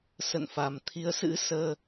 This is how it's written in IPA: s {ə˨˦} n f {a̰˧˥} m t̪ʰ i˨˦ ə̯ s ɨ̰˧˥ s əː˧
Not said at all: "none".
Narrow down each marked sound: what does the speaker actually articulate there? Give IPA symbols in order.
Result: ə̰˧˨, a˨˩

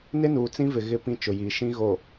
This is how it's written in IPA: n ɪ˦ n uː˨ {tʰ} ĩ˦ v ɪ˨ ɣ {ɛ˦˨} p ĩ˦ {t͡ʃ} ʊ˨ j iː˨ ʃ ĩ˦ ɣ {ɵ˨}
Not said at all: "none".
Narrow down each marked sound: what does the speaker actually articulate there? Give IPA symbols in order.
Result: t͡s, ɪ˦˨, t͡ʃ, o˨

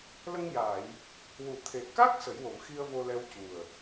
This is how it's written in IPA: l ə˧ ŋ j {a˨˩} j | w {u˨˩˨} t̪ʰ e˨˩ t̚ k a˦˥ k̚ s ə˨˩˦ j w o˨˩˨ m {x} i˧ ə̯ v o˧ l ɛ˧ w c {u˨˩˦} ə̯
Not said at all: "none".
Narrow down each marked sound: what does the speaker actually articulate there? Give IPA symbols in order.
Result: a˨˩˨, u˨˩˨, x, u˨˩

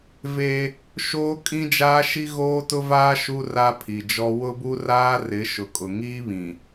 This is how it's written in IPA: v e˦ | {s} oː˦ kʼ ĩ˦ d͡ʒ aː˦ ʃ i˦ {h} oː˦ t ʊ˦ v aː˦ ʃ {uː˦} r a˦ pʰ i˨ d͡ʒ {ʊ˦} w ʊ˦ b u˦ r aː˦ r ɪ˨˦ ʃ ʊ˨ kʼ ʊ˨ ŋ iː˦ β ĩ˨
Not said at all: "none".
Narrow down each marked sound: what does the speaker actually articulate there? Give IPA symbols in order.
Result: ʃ, ɣ, u˦, ɔ˦

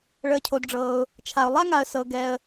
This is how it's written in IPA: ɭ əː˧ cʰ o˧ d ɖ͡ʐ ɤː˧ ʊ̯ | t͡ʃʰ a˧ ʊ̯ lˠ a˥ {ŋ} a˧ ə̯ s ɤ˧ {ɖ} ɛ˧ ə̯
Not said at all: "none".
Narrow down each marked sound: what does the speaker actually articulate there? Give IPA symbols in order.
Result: ŋ, ɡ

